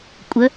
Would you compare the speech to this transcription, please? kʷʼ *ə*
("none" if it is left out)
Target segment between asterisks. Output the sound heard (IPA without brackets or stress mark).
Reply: ə